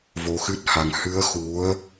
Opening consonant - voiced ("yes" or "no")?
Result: yes